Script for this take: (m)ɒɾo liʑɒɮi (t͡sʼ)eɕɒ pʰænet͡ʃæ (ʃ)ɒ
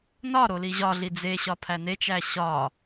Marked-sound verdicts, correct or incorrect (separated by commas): incorrect, incorrect, incorrect